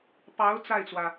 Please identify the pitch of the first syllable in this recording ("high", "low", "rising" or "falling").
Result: rising